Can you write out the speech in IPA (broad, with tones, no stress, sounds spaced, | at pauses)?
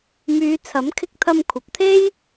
m yː˨˧ t͡sʰ ɐ˨˥ m kʰ ɪ˧ k̚ t̪ʰ ɐ˧ m kʷʰ ɐ˨ p̚ t̪ʰ e˥ j